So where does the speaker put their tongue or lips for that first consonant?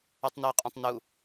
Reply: tongue tip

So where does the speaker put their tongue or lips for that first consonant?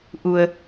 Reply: throat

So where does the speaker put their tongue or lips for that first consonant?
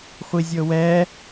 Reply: uvula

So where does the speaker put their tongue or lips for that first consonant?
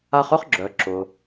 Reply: uvula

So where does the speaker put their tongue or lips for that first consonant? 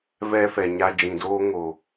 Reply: lips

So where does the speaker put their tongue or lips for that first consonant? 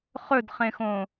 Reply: uvula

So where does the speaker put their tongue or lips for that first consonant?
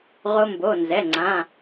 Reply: uvula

